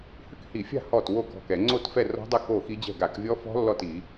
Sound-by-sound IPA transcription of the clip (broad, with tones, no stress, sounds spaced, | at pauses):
h ʏ˥˩ k h i˧˩˧ fʲ a̤˥˩ h ɔ˥˩ t w o˥˩ k ɔ̤˥˩ k ɛ˧˩˧ ŋ͡ǀ o˥˩ t f ɛ˥˩ r ɔ̤˦˥ dˤ ɛ˥˩ k o˥˩ x i˦˥ d͡ʑ ɛ̤˥˩ ɡ a˧˩˧ k vʲ ɔ˦˥ f ɔ̤˦˥ lː ɔ˥˩ t i˧˩˧